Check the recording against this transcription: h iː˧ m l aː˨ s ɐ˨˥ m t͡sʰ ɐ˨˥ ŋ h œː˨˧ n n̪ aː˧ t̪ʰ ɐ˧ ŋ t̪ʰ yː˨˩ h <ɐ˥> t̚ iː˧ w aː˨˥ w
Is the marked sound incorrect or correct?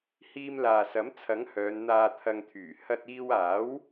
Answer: incorrect